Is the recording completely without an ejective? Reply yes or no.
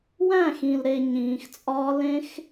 no